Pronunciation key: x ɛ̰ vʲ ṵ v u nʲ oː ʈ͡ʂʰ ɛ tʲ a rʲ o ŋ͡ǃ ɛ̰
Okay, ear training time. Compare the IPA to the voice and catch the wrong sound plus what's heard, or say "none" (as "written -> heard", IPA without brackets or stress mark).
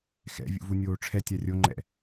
none